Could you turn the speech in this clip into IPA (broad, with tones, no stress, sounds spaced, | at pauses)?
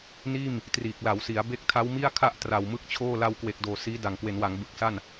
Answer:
n iː˥˩ m | t r iː˨˩ k̚ l a˩˦ w s i˩˦ a̯ b e˦˥ k̚ tʰ a˦˥ w m i˥˩ a̯ kʰ a˥˩ ʔ t r a˨˩ w m ɯ˥˩ k̚ t͡ɕʰ oː˥˩ l a˧ w k w e˨˩ k̚ d oː˨˩ s iː˦˥ d a˨˩ ŋ k w e˩˦ n w a˩˦ ŋ b ɯ˨˩ k̚ s a˥˩ n